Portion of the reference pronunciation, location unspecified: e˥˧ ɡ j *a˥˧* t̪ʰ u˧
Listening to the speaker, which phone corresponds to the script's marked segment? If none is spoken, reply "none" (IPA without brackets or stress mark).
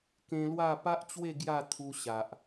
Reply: a˥˧